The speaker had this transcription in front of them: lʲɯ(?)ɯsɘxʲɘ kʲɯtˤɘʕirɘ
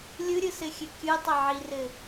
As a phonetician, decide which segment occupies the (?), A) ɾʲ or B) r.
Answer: A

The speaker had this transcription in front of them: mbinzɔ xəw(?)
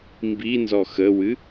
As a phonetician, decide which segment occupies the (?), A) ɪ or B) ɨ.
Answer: B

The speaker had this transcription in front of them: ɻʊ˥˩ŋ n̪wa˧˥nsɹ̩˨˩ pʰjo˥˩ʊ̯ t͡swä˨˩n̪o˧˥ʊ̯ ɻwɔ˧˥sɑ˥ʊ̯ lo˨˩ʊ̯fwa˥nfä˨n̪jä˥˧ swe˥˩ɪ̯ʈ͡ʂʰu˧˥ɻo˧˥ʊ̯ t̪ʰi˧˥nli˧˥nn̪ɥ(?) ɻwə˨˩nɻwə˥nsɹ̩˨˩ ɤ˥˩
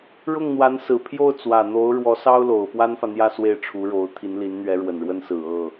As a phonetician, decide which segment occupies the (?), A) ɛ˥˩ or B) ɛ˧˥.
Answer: B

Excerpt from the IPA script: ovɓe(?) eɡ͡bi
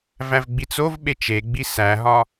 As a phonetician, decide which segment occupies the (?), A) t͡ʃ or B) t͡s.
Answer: A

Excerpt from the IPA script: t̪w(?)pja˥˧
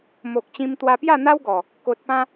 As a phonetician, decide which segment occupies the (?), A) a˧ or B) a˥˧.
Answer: A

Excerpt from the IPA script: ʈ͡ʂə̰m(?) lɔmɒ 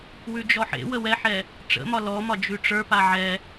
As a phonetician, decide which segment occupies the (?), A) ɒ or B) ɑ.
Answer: A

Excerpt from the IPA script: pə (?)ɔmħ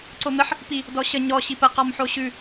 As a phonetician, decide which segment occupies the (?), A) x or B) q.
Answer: B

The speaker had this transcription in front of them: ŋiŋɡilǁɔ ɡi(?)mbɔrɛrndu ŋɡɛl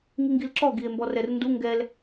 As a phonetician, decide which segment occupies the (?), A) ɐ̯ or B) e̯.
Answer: B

